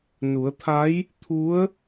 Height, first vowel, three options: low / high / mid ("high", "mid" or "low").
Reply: high